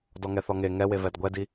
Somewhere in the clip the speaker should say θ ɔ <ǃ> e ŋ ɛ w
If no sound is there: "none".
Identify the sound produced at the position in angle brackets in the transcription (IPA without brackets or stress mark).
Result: ŋ